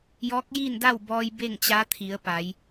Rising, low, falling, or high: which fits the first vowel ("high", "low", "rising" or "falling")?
rising